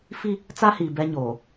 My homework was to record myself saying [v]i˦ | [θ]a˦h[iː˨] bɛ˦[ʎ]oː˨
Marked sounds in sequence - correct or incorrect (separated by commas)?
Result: incorrect, incorrect, correct, incorrect